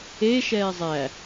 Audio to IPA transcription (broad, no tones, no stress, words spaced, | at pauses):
e ʃɛːzˤæ